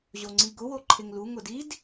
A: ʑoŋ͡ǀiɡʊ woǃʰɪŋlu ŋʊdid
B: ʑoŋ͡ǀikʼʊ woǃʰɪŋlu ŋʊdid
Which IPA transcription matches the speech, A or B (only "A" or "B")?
A